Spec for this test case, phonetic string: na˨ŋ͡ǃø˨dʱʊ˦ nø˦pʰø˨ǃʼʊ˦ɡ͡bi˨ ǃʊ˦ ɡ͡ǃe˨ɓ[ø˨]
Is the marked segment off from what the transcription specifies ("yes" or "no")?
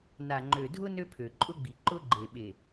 yes